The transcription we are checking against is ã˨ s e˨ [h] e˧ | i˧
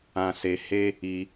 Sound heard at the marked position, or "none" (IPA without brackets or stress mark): h